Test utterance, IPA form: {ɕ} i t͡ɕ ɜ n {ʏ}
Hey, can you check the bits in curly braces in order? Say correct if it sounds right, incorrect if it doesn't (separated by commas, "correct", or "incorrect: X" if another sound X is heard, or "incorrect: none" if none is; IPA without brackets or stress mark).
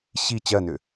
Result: correct, correct